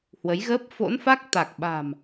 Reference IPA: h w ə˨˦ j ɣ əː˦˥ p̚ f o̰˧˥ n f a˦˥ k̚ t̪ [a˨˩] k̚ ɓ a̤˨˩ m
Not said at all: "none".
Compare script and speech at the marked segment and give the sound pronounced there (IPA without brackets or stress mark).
a˨˩